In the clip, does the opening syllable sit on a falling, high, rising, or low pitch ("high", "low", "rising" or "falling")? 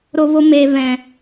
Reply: low